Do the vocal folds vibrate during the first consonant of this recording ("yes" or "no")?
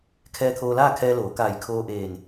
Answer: no